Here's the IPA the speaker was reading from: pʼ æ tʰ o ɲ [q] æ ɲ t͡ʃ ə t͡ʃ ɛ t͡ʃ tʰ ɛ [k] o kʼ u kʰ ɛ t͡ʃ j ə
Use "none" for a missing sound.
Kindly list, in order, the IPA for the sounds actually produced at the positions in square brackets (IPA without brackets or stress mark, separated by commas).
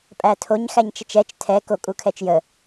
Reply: x, k